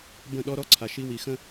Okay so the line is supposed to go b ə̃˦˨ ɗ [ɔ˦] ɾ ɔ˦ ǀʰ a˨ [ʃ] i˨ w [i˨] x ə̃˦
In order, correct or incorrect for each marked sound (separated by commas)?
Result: correct, correct, correct